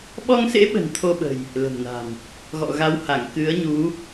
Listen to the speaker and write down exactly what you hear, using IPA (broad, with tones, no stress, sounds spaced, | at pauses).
ɓ ɔ˧ ŋ s ḛ˧˥ ɓ ə̤˨˩ n t̪ʰ o˧ ɓ ə̤˨˩ j | l ə̤˨˩ m n a̤˨˩ m | ɣ ɔ̰˧˨ ɣ a˨˦ w h a˧˩ ŋ k ɨ˨˦ ə̯ ɲ u˨˦